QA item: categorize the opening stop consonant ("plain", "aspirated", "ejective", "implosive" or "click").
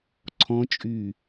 click